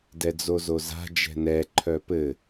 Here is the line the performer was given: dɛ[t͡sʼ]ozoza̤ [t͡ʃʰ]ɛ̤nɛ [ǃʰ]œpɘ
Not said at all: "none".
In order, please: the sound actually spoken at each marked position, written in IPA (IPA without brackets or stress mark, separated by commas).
d͡z, d͡ʒ, ǃʰ